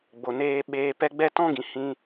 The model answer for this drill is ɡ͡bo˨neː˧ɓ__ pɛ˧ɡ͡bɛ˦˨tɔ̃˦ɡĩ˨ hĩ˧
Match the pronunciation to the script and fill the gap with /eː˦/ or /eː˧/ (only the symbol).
eː˧